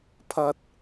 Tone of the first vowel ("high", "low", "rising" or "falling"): high